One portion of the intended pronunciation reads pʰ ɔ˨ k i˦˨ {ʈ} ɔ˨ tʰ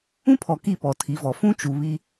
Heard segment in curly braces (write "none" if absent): p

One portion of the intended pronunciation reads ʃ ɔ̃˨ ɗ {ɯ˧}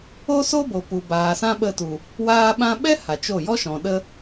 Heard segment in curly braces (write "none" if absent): ə˧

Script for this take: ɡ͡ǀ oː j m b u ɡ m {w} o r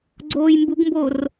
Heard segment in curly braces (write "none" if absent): b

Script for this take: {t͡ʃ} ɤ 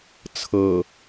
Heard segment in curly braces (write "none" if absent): t͡sʰ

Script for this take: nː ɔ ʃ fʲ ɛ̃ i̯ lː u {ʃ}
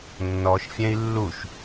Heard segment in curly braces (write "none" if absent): ʃ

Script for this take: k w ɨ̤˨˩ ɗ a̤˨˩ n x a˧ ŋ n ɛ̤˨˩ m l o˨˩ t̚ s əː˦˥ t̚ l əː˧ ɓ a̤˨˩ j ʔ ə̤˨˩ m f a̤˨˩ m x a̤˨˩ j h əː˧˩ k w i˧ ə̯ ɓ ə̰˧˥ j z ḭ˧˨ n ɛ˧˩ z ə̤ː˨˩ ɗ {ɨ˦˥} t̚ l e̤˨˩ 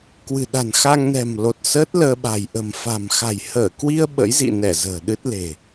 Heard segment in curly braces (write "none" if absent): ɨ˦˥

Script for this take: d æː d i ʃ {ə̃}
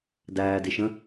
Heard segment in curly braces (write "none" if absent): ə̃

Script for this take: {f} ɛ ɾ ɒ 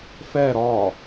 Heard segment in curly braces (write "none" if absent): f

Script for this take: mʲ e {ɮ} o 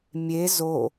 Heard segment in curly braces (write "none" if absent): z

